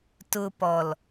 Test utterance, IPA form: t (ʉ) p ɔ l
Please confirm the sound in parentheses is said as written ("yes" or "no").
no